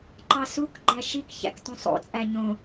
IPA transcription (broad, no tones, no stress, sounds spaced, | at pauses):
ǃ ɑ s u k ɡ͡ǃ æ ʃ i k ç æ̰ k t ũ sˤ o̰ t͡sʼ æ ɲ õ